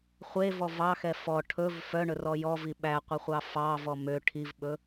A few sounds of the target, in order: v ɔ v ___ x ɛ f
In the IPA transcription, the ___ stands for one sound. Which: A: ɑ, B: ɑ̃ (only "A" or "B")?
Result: A